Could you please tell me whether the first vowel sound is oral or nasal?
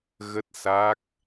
oral